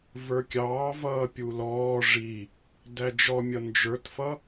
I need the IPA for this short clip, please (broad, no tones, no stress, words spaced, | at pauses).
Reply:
və˞kʲɑːvʌː pʲulɔː ʐi | dæd͡ʒɔmʲʌ nd͡ʒə˞tfʌ